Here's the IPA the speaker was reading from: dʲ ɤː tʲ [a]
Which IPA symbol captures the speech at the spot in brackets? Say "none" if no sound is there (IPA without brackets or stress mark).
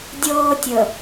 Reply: ə